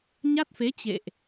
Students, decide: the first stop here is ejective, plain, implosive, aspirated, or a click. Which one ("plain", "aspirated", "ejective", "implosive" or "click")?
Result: plain